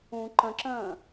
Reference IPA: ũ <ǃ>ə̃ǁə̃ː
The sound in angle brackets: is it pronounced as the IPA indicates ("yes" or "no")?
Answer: yes